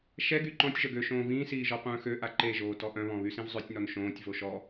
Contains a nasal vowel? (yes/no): yes